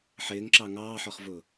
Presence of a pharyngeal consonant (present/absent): present